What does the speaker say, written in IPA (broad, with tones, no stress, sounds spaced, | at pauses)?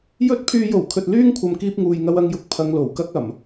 j ɵ˥ t̚ pʰ yː˧ j o˨˩ w kʰ ɵ˨ t̚ l yː˥ ŋ kʷʰ ɐ˨ m k iː˥ p̚ ŋ uː˨ j ŋ ɐ˧ w ɐ˧ ŋ j ʊ˨˥ k̚ pʰ ɐ˨˧ ŋ l o˨˩ w k ɐ˥ k̚ ɐ˨˩ m